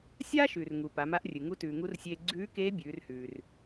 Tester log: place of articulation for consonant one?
alveolar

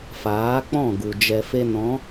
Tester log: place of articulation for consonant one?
labial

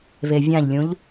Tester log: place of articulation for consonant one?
labial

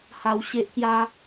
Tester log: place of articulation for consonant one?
glottal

